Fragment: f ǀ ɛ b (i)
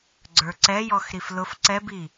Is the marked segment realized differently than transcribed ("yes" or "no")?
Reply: no